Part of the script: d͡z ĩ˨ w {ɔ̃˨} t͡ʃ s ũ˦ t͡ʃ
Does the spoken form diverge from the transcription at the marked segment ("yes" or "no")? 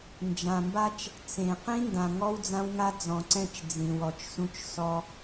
yes